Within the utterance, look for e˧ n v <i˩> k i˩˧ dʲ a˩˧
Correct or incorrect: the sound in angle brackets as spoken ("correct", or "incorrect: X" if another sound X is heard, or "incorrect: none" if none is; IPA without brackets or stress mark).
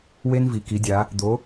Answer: correct